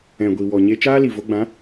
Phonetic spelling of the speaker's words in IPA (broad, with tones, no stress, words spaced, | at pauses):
ɛ̃˨ɡʷi˨ wɔ˨ ɲe˧t͡ʃaː˦li˨vo˧ ɡ͡bã˨˦